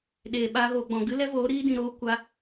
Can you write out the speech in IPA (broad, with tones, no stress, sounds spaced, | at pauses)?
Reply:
ɗ eː˨ ɓ aː˧ ɣ oː˨ ɡ͡b ɔ̃˨ ɡ ɨ˦ l ɛ˦ v oː˨˦ ɾ iː˧ d ĩ˨ ɾ oː˧ kʷ a˦